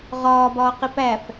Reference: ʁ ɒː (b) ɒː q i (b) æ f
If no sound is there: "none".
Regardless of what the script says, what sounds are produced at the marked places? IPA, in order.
b, p

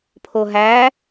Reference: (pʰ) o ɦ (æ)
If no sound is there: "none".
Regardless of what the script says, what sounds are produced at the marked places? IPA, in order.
pʰ, æ

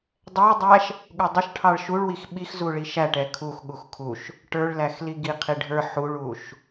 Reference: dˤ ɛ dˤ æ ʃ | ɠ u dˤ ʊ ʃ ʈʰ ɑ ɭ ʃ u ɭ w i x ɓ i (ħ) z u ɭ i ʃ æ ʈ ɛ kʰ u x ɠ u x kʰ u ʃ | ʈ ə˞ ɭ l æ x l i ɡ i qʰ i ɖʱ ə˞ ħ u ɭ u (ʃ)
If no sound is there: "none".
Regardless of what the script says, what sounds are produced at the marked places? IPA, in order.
x, ʃ

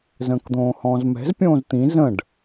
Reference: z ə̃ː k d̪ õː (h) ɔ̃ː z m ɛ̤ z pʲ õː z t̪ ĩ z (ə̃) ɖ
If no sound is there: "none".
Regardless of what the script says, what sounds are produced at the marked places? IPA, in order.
h, ə̃

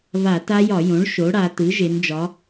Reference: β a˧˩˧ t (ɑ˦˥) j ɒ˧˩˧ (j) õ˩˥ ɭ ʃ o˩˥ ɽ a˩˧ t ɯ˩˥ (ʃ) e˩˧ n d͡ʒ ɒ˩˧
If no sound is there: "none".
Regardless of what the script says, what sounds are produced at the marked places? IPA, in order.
a˦˥, j, ʒ

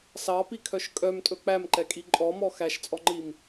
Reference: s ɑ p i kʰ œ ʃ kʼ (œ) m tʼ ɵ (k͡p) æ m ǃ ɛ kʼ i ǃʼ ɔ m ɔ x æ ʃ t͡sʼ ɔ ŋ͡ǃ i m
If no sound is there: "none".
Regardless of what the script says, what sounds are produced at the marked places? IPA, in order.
œ, k͡p

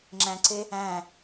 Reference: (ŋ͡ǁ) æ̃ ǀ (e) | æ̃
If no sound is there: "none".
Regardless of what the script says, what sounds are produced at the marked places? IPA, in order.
ŋ͡ǁ, e

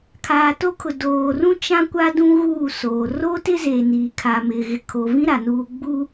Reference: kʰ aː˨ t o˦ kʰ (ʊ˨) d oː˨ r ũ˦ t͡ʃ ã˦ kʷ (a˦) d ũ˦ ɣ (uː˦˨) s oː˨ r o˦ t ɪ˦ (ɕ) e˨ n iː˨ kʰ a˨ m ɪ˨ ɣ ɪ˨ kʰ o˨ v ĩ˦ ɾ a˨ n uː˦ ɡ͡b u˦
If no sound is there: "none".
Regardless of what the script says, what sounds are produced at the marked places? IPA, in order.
ʊ˨, a˦, uː˦˨, z

